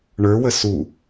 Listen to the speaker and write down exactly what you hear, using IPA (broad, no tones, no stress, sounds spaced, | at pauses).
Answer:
ɳ ə˞ w ə s u